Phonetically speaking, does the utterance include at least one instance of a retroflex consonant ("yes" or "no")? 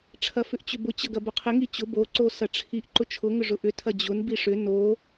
yes